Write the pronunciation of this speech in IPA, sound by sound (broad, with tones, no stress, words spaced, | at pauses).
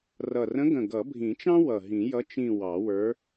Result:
rʌ˨˩rə̃˧˥ɡə̃˨˩ ɡʌ˨˩˦bʱĩ˨˩˦t͡ʃɑ̃˥ wʌ˨˩ɦĩ˨˩˦jʌ˧˥ t͡ʃĩ˦˨ wɑ˨˩˦wə˞˧˥